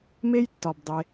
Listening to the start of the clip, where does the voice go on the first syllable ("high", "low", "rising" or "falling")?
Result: high